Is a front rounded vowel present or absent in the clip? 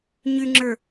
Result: present